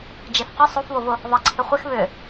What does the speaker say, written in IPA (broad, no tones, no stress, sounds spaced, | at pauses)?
d͡ʒ e f q ʏ sˤ o f β o v ʊ | ðˤ ə ǀʰ ɪ χʷ ɪ x β ʏ